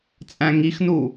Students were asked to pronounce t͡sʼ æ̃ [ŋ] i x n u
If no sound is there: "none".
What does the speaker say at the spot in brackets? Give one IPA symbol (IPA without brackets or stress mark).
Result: ŋ